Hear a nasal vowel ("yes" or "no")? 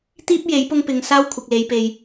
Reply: no